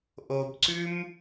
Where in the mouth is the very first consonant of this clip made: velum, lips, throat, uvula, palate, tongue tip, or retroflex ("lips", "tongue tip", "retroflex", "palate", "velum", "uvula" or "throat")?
throat